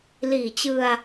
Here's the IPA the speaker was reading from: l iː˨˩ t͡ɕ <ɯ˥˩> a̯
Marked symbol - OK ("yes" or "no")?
no